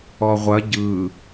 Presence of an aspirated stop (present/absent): absent